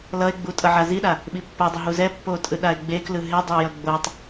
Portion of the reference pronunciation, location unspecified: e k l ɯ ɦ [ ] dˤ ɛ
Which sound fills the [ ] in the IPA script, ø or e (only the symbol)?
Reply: e